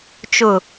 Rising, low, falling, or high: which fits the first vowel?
low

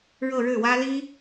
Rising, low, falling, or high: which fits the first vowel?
falling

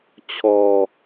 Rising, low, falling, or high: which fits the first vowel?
low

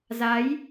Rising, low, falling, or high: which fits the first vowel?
rising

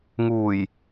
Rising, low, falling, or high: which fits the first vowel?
low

